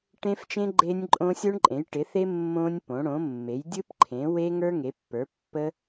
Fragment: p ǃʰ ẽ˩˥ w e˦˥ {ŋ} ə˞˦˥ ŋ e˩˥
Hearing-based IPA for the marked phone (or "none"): ŋ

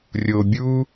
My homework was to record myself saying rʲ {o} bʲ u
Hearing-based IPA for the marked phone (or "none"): o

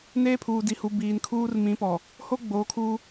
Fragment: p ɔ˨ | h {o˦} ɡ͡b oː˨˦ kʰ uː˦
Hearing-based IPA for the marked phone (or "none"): o˦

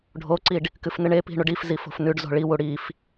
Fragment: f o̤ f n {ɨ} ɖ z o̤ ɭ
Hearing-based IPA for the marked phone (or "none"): ʉ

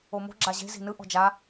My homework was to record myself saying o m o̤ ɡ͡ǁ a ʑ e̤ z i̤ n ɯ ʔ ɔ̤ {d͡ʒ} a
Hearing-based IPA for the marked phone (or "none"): d͡ʒ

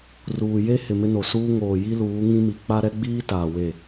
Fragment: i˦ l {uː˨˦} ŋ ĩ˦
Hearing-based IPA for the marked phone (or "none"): uː˨˦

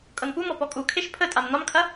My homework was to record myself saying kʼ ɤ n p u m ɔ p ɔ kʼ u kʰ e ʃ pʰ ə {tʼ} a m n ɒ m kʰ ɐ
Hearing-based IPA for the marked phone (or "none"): tʼ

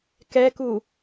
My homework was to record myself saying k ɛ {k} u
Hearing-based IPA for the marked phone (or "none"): k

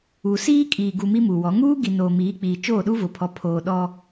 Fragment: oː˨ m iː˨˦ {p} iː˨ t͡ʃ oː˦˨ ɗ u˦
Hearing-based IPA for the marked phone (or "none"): k͡p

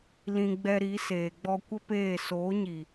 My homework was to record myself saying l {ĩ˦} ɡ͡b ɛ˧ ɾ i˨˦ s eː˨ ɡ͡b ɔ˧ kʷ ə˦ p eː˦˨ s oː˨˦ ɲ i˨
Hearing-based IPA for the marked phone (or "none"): ĩ˧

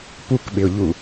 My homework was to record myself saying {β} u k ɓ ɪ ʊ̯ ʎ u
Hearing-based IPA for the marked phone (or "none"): p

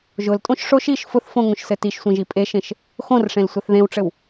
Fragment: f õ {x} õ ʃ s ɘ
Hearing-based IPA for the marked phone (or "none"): ŋ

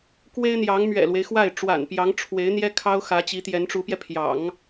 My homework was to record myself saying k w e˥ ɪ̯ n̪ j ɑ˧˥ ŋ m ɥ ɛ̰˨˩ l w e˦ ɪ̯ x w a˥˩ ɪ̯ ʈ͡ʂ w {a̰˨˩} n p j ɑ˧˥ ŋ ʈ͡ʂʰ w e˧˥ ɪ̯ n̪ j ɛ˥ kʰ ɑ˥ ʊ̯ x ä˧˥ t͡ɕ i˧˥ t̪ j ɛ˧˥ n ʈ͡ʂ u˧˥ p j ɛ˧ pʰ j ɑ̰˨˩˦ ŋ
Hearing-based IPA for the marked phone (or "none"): a̰˨˩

